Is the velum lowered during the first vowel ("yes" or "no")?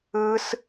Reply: no